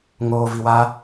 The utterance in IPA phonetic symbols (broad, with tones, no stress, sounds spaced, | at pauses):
ŋ oː˧ v i˧ w a˦